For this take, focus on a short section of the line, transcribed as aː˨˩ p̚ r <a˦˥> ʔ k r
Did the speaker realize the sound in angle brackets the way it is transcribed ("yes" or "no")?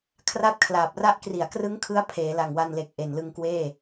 yes